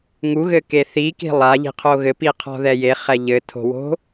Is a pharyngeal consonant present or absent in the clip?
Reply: absent